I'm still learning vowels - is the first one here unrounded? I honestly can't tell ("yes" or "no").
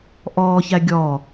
no